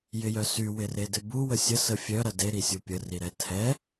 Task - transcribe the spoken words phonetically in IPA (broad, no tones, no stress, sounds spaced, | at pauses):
j ɪ j œ s y w ɪ r e d ɪ b u w ə sʲ ə s ə fʲ œ ɾ ɐ d e ɾ i sʲ u pʲ ə r i ɾ ɛ tʰ ɛ